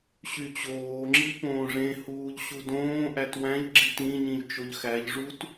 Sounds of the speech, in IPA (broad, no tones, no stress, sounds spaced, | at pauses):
ɕ y t͡ɕ oː ŋ͡ǁ i p õː ʐ ẽ h uː ʎ ɕ u d õː ʔ æ t w æ̃ ʎ ɡ͡ǁ i t ĩ ɲ ĩ ʎ t͡ʃ o ʎ x æ ʎ ʐ u t